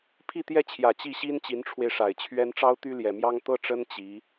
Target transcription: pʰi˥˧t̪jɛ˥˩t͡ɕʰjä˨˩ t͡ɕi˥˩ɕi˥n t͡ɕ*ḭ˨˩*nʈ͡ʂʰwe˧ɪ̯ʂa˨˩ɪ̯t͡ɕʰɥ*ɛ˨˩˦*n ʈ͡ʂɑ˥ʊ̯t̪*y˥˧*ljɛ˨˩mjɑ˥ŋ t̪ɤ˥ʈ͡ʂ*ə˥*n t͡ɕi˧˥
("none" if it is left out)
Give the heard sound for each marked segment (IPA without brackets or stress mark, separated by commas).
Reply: i˧˥, ɛ˥, y˥, ə˥